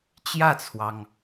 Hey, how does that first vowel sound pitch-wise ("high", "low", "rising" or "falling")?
falling